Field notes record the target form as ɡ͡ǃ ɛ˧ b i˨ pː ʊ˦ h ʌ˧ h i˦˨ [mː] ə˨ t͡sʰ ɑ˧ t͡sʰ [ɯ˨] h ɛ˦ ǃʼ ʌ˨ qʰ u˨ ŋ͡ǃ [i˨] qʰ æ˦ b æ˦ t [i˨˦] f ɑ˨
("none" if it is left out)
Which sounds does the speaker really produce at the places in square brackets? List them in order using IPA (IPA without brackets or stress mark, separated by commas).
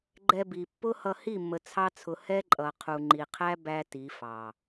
mː, ʊ˨, i˨, i˨˦